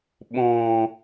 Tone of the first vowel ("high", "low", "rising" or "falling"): low